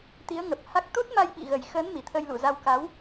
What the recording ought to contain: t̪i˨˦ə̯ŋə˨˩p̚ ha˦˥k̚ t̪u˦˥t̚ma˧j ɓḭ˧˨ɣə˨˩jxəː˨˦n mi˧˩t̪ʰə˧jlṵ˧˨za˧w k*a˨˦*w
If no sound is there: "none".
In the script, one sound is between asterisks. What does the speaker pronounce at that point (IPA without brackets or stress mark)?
a˨˦